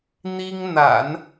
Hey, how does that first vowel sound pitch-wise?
high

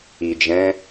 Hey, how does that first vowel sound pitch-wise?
low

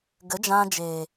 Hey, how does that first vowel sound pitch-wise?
rising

